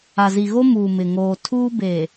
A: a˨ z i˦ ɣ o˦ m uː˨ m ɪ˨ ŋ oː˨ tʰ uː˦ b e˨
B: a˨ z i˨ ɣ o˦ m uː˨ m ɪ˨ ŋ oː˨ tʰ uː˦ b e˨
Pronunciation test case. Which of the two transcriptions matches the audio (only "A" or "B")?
B